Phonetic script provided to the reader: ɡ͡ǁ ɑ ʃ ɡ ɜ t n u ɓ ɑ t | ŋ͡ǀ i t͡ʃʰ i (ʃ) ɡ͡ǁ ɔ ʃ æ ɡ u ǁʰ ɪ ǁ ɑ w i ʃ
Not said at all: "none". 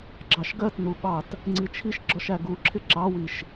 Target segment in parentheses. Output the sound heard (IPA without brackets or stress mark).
ʃ